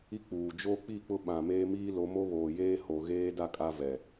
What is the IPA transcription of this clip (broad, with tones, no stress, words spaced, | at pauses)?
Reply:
i˦k͡puː˨ d͡ʒoː˦k͡pi˦˨k͡pʊ˦ ɓã˨meː˦miː˦lo˨˦ mo˦βoː˨jeː˦ ho˨ɣeː˦da˦˨kʼa˦ vɛ˨